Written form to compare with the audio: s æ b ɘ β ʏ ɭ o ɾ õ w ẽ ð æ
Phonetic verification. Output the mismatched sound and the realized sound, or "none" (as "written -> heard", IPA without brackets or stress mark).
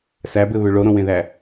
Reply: none